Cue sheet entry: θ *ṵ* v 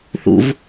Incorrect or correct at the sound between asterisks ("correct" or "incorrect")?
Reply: correct